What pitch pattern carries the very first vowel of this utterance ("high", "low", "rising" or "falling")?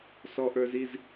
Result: low